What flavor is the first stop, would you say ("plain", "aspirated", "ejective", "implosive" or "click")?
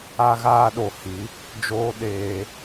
implosive